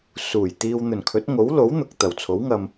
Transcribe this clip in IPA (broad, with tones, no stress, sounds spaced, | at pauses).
s uː˨˩ j t̪ iː˧ w n̪ ɵ˨˩ n kʰ ɵ˨˥ t̚ ŋ o˨˥ w l o˨˥ w n̪ ʊ˨ k̚ t̪ ɐ˨˩ w t͡sʰ o˨˥ w ŋ ɐ˧ m